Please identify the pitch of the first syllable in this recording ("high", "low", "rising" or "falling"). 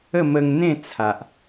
falling